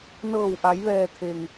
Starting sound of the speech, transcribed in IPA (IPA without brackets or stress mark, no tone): n